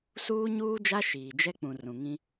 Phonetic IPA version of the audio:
s uː˦ ɲ uː˦ d͡ʒ a˦ ʃ iː˨ d͡ʒ ɛ˦ k͡p ũ˨ r ũ˨ ŋ ĩ˦

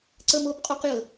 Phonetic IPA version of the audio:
ǀ ə˥ m o˥ b qʼ o˥ q j ə˩

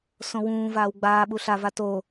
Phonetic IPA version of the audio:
s õ w ũː v aː w ɡ͡b aː ɓ u ɬ a v a t o

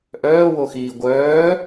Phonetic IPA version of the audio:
ʔ œː w o x iː ɡʷ œː

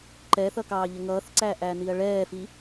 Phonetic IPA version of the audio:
ǃ ɛ θ ʌ k ɑː ʎ ə ŋ ʌː θ ǀ æ ʔ æ n i ɐ̯ ɭ ɛː f i

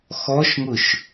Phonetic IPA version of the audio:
x ɔ ʃ ŋ ʊ ʃ

